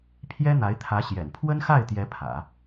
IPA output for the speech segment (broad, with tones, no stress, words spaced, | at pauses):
pʰjɛ˥n̪a˧˥ɪ̯t̪ʰä˧˥ɕjɛ̰˨˩n pʰwə˥nxa˥˩ɪ̯t̪jɛ˧˥ pʰä̰˨˩˦